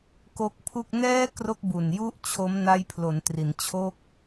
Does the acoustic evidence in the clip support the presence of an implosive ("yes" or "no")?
no